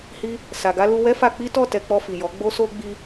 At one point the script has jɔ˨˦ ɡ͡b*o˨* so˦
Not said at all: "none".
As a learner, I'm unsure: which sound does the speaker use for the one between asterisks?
o˦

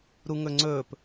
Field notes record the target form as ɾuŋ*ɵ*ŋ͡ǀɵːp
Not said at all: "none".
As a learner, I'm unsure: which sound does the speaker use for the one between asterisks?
ɵ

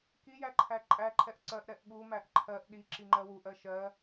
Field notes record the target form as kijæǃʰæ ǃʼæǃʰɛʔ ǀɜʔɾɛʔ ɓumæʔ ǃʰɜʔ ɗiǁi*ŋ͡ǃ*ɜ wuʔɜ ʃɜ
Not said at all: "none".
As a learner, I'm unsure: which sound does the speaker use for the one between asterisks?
ŋ͡ǃ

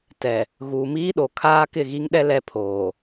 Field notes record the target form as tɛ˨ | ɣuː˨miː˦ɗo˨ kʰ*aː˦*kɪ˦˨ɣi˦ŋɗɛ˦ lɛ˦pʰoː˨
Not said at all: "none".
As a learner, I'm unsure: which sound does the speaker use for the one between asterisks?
aː˦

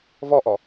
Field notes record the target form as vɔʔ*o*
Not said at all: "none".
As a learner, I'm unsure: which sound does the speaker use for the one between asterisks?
ɔ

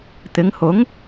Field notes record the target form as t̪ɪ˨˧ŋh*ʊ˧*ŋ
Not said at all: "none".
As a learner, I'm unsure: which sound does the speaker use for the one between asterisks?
ʊ˨˥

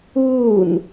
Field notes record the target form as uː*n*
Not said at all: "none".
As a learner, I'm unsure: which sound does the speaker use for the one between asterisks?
n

